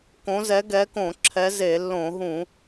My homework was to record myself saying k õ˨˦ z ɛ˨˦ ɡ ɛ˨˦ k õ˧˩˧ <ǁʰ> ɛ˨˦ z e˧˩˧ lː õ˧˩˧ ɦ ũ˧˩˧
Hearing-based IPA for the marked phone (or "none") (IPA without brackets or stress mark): ǁʰ